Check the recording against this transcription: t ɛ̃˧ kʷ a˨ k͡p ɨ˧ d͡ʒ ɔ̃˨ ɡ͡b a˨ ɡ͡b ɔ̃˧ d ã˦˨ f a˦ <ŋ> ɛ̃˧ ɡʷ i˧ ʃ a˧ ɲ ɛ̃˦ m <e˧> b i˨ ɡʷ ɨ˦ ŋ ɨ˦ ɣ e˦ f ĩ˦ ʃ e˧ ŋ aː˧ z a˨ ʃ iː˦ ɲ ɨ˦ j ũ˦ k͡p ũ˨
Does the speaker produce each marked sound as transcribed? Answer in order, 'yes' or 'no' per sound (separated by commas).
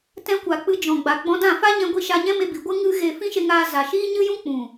no, yes